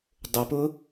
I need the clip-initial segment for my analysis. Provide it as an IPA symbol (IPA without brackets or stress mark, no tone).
dˤ